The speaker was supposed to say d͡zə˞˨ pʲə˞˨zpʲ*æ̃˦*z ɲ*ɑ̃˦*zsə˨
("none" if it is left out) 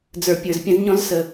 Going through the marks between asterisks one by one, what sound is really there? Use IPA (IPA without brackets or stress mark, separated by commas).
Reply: ə̃˦, ɔ̃˦